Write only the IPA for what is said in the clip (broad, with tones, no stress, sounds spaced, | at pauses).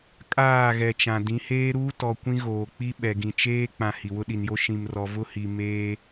kʼ aː˦˨ ɣ ɛ˨ t͡ʃ ã˨ d ĩ˨˦ h eː˦ ɾ uː˦ t ɔ˨ kʷ ĩ˦ ɣ oː˨ k͡p i˦ ɓ ɛ˨ ɡ ĩ˨ t͡ʃ eː˦ k͡p ã˨ h i˨ w ʊ˦ ɗ i˨ n j o˦ ʃ ĩ˨ m r ɔ˨ v ʊ˦ h i˨ m eː˦